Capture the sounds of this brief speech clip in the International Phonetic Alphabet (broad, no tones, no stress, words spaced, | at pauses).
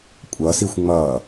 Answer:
kʷʼʌsixʷ ŋ͡mʌː